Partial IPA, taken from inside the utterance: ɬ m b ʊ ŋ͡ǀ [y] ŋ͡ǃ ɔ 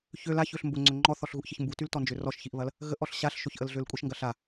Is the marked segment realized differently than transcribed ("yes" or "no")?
yes